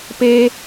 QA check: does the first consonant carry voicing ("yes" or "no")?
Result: no